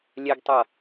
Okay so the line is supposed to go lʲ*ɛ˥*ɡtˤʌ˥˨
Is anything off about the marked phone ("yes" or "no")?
no